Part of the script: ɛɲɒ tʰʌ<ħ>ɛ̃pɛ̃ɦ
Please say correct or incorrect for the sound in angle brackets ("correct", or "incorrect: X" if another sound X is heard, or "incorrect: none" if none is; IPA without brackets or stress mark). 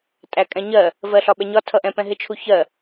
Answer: incorrect: ʔ